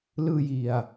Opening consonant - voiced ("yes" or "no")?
yes